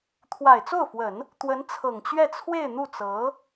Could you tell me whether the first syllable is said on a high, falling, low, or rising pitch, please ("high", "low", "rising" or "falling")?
low